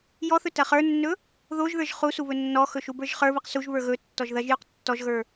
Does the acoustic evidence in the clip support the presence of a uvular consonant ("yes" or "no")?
yes